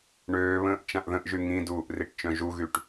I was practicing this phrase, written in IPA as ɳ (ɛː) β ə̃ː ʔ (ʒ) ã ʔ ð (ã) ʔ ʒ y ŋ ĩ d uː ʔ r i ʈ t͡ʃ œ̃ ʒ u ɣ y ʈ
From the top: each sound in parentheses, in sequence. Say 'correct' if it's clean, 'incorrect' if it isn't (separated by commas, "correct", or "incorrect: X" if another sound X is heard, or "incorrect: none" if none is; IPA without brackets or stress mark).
incorrect: øː, incorrect: t͡ʃ, incorrect: ə̃